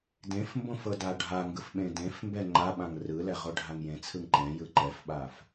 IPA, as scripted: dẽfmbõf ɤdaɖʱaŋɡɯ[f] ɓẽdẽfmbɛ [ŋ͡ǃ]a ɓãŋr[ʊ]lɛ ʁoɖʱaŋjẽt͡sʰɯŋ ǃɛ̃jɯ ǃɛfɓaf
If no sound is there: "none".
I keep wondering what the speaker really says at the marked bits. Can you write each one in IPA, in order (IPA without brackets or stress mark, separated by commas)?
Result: f, ŋ͡ǃ, ɯ